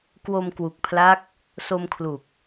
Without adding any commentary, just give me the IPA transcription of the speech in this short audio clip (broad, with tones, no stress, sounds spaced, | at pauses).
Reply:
k w o˧ m k w u˨˩ k̚ pʰ l a˦˥ k̚ | s o˧ m kʰ l u˨˩ k̚